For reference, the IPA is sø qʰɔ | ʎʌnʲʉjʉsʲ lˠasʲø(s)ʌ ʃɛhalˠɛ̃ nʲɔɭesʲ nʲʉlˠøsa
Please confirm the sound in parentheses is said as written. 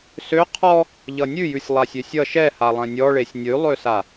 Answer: no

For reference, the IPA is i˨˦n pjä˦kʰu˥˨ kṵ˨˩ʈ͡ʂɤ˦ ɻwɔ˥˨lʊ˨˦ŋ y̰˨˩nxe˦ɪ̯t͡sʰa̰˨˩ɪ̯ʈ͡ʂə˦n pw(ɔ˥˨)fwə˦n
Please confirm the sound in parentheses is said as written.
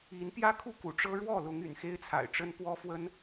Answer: no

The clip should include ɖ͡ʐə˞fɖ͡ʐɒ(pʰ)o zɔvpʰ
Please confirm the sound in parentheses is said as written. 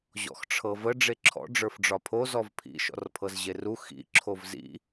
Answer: yes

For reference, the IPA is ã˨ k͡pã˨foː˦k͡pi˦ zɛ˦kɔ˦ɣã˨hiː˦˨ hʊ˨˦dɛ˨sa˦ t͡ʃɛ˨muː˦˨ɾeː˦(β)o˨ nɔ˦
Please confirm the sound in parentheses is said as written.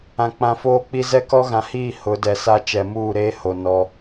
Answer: no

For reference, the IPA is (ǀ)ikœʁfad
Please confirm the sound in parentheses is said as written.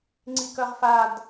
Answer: no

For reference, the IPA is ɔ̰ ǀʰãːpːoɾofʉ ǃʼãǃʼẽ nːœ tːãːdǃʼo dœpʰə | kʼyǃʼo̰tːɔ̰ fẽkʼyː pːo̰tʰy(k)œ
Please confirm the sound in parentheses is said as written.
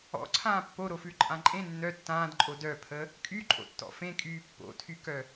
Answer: yes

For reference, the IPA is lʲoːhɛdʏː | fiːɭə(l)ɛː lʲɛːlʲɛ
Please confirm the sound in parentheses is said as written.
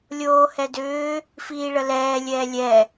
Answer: yes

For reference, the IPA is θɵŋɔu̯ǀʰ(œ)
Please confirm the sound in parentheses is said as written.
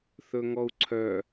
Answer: yes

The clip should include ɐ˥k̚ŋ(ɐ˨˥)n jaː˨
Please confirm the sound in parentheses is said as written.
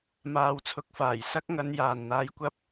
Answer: no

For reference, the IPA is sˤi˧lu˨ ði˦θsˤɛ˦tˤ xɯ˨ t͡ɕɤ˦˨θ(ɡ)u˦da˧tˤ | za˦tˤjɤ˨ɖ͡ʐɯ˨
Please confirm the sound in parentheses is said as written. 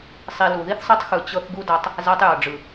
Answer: yes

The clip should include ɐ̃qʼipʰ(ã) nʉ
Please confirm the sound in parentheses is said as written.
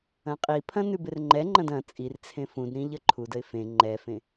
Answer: no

